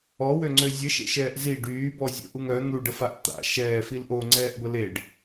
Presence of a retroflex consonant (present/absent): present